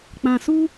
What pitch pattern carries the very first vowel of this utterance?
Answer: low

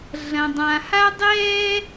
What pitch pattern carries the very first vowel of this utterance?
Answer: low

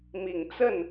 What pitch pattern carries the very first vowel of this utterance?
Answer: low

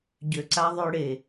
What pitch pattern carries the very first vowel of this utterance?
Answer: low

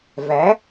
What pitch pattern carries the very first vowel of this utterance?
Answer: rising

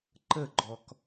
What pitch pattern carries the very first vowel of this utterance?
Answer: falling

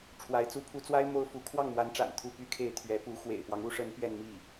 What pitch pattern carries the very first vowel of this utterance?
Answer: rising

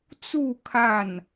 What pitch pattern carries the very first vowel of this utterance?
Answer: falling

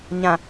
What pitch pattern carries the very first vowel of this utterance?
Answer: low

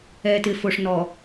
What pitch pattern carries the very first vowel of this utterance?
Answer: low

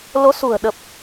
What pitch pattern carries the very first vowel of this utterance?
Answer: rising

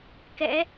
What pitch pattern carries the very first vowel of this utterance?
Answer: rising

